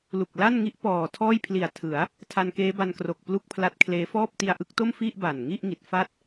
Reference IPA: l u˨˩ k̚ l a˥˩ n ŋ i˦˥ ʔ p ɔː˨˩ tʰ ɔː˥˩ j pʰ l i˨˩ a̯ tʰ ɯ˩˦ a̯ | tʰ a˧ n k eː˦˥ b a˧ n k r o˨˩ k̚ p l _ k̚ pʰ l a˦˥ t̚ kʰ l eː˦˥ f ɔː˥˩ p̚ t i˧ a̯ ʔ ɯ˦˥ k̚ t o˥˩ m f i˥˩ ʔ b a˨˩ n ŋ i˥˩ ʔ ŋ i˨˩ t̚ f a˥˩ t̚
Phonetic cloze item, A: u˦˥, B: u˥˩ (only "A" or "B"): B